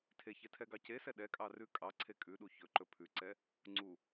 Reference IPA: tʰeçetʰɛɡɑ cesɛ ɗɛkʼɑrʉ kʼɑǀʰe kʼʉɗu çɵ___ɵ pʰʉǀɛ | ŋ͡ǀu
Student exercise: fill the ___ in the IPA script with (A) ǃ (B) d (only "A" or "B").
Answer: A